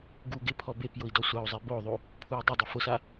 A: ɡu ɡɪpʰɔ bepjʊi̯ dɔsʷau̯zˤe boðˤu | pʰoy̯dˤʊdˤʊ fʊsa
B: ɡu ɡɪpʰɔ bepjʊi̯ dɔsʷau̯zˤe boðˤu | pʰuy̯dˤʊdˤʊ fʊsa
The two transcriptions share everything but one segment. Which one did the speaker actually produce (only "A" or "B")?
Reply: B